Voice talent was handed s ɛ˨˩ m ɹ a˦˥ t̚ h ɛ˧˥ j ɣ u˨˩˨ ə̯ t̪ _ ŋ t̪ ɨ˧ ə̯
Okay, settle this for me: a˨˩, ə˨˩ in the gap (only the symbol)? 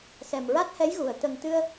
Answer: ə˨˩